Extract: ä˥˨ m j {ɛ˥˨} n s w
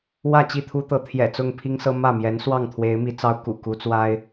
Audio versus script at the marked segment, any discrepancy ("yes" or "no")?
yes